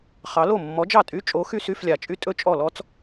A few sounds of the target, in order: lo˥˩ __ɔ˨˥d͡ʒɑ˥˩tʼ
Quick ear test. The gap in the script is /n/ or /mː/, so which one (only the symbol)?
mː